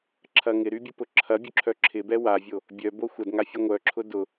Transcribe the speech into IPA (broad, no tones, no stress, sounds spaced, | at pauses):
ǁʰ ɐ ŋ ɪ ɾ y bʲ ʊ p ʊ ǁʰ ɐ bʲ ʊ ǁʰ œ ǁʰ ɪ b ɛ w a vʲ o | bʲ œ b o xʷ ɐ d ŋ a fʲ e ŋʷ œ ǁʰ ʊ d ʊ